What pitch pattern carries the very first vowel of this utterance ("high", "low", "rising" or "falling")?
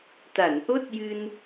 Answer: low